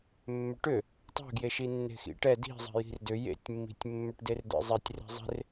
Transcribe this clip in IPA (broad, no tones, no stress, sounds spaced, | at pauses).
mː ʏ ʈ ʏ | tˤ ɛ̤ ɡ j e ʃ i nː e̤ x ḭ ʈ ɛ d i̤ zˤ ɛ̤ j i̤ r d ʏ j ḛ tʲ mː i̤ tʲ mː ʏ ʈ d e r d̪ ḛ zˤ e tʲ r e̤ zˤ e̤ r